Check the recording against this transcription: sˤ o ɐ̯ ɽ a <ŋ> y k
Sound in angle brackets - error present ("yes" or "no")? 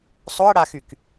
yes